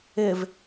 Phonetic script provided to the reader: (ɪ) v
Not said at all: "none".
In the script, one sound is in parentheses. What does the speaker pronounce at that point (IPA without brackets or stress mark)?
ɪ